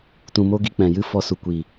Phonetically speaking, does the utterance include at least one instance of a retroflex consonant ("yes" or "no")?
no